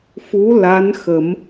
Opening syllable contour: rising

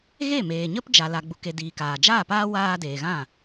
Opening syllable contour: falling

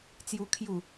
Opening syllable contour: high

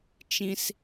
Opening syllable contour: high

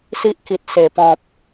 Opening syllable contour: high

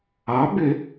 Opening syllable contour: rising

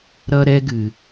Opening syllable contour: high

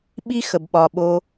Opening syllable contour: high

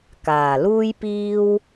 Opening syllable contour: low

